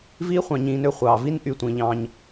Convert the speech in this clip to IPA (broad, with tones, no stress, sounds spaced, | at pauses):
v iː˦ χʷ ɑ̃˨ ɲ ĩː˨ n ø˦ χʷ ɑː˩ v i˦ n ʔ y˨ tʷ ĩː˩ ʎ ɑ̃ː˨ ɲ